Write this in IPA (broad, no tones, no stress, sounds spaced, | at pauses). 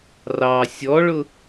r ɑ sʲ ɔ ɭ ʊ